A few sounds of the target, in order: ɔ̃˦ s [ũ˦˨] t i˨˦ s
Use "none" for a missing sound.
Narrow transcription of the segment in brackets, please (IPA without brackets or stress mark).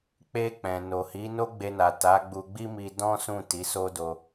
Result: ũ˦˨